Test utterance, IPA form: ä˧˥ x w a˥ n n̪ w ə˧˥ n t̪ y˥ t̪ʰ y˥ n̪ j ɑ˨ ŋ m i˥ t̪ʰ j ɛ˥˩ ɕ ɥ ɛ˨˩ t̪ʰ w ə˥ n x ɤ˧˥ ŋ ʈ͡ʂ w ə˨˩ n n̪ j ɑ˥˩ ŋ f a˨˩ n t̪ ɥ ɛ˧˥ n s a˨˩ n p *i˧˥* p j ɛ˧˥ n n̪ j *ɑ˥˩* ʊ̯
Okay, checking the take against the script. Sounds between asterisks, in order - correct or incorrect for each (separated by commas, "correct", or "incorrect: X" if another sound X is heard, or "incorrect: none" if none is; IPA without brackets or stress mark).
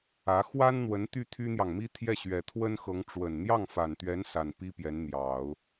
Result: incorrect: i˥, incorrect: ɑ˨˩˦